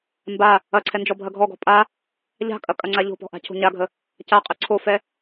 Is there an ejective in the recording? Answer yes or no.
yes